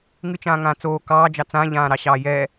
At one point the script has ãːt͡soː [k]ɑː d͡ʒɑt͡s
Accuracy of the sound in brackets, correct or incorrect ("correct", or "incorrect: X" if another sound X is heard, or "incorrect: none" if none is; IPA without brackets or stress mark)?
correct